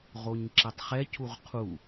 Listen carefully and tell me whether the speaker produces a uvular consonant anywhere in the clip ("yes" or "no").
yes